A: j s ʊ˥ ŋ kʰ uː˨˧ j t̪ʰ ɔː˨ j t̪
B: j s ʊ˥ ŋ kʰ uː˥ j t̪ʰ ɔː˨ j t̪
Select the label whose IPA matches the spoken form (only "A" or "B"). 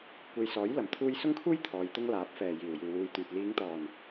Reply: B